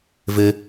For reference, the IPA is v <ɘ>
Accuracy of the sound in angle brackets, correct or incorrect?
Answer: correct